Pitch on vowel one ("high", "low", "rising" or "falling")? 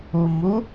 rising